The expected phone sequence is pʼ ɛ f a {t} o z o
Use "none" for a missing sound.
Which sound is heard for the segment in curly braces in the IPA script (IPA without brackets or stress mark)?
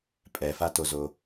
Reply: t